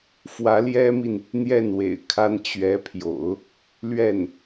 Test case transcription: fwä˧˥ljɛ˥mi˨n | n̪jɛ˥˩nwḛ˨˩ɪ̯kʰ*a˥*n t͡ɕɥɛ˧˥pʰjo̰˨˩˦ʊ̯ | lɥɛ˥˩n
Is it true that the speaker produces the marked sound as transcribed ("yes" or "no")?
yes